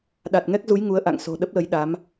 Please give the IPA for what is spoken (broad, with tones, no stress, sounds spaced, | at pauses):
ɗ a˨˩ t̚ ŋ ɛ˦˥ k̚ z u˨˦ j ŋ u˨˦ ə̯ ʔ a̰˧˨ ŋ s o̤˨˩ ɗ ə˦˥ p̚ l ə˨˦ j ɗ a˨˦ m